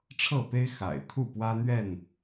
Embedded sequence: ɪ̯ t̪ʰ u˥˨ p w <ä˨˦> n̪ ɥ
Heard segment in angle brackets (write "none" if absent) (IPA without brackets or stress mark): ä˦